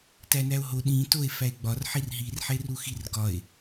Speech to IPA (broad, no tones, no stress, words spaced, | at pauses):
tænæo̯ɦo ɗĩ toe̯ fæe̯ɡ͡bɒr ħirɦir ħeruxirɡɒe̯